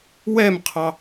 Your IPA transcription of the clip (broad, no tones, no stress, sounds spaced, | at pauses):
w ɛ m qʰ ɑ